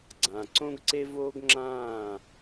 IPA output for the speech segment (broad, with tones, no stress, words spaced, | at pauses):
ɡ͡ǀã˨ ǀõ˦ɡǀe˦ voː˦ɡŋ͡ǁãː˦˨